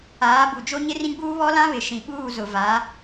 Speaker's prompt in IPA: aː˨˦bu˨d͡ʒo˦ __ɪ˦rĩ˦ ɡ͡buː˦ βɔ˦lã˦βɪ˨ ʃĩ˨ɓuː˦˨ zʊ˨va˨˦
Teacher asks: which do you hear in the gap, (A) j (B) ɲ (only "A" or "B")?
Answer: B